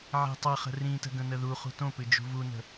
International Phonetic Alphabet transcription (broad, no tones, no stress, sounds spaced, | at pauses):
ʕ i̤ tˤ ɐ χ ə̤ r ĩ t ə̤ ɡ ə̃ n ə ð u χ ṳ t õ p ɨ d͡ʒ ṳ v u n ə̤